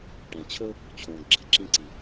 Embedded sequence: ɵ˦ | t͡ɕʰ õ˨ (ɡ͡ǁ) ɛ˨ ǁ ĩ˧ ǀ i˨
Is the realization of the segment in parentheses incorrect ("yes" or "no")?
no